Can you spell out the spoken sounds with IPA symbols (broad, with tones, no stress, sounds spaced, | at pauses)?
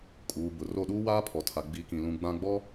kʼ uː˨ b ʊ˨ r o˦˨ ɗ uː˦ w aː˦ pʰ ɔ˨ tʰ a˨ ɡ͡b i˨˦ k ĩ˨ l ũ˨ ɡ͡b ã˦ ɡ͡b ɔ˦